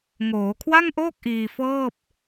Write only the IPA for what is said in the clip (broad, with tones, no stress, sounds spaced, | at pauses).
ŋ oː˩˦ kʰ w a˥˩ ŋ ʔ oː˥˩ k̚ ʔ iː˧ f ɤː˥˩ p̚